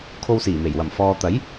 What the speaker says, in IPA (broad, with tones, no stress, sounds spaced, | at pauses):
kʰ o˧ w s iː˨˩ m e˨˩ j w ɐ˨˩ m f ɔː˨ t̪ ɐ˨˥ j